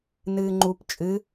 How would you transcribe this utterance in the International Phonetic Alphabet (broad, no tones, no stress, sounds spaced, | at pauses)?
n ɨː ŋ͡ǃ u p t͡ʃʼ ɨ